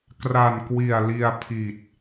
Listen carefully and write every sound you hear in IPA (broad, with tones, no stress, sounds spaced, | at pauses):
k r a˨˩ n k w i˨˩ a̯ l i˧ a̯ pʰ i˨˩ t̚